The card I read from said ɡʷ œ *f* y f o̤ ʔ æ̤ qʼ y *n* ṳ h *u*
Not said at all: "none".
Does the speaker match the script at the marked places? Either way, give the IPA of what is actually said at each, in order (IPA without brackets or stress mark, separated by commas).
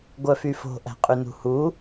f, n, u